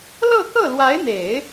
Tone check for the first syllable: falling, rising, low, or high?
falling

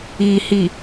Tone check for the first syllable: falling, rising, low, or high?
low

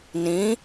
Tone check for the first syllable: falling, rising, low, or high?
rising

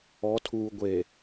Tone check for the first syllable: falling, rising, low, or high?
rising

